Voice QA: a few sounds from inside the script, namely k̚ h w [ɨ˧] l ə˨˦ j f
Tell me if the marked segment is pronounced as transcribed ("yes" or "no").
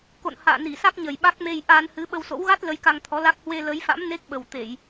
no